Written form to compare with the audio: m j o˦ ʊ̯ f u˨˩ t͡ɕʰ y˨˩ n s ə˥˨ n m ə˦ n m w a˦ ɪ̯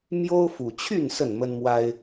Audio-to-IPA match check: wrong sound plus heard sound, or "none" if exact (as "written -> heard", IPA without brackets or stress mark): y˨˩ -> y˥˨